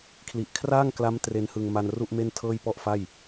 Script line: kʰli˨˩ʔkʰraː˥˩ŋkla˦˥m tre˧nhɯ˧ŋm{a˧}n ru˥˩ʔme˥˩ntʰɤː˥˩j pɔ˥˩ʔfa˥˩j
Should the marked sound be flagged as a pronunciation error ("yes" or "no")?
no